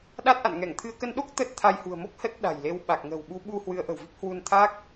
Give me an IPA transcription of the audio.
ɗa˦˥t̚ʔa̰˧˨nŋɛ˧˩ŋ t̪ʰɨ˧ə̯ kə˧nɗo˦˥k̚ t̪ə˦˥t̚t̪ʰa˧jhṳ˨˩ə̯mo˦˥k̚ hə˦˥t̚ɗa̤˨˩jle˨˦wɓa˨˩k̚ ŋə̤˨˩wɓu˨˦ ɓu˧ hwɨ˨˦ə̯ʔə̤˨˩wvi˦˥k̚ hwu˧nt̪ʰa˦˥k̚

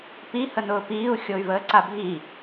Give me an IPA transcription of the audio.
pi hənʊːpiːu̯ xʲoy̯vəːǀabʱi

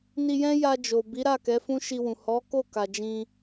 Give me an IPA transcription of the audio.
ni˧jɛ̃˦ja˧ d͡ʒo˨ bi˨˦ɾa˦˨ kɛ˨˦fũ˦ ʃi˧wũ˨ hɔ˨˦ko˦˨ ka˨d͡ʒĩ˧

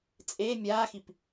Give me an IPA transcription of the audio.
t͡sʼe mʲaːxip

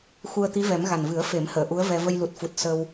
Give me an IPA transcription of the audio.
xu˧ə̯t̪i˧˥vɛ˨˩˦m ɣa˨˩nvɨ˨˩˦ə̯ fe˨˩˦mhəː˨˩˨ ʔu˧˥ə̯vɛ˧ və˧jlu˨˩t̚fu˨˩t̚ sə˧w

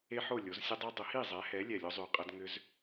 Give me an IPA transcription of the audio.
e˦ħo˥˩ lʲo˩˥z sʲʊ˦dˤy˦ dˤʊ˩˥hi˥˩zˤɛ˩˥hɛ˩˥ lʲɛ˧˩lʲo˦zˤy˧˩qʼɐ˦d ŋʏ˦z

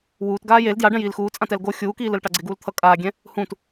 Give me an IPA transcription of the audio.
wuːtɡaː jel djaɖɛ̃jiːl xuːt͡sʼãt ɛlɡo xʲuːkiːlɯlʈa ɡ͡ǀeɡuːlt̪ʰʌ kʼaːɡʲɛ̃ | hũt

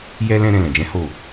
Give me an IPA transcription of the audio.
jɛ˧lɛ̃˧ ɾɛ̃˧lɛ̃˨d͡ʒɛ̃˨˦ ho˦˨

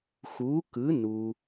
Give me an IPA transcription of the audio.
xuː˩˥kɯ˩˥ nu˩

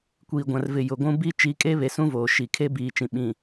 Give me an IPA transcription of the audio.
kʷiː˨ɡʷã˨rvɪ˨ jʊ˨ɡʷũ˦ bi˦ t͡ʃi˨˦kʼe˦βe˨sũ˦ voː˨ʃi˨ kʰe˦ biː˨t͡ʃĩ˨ ɓĩ˨

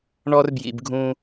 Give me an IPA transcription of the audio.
ɳɔ˦rbjḭ˨bɡʱũ˦

